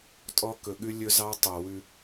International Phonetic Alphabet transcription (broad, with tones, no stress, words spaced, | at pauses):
tʼɔ˥ kɵ˧ɠʉ˥ lʲɵ˥zɑ˥ tˤo˧ wʉ˧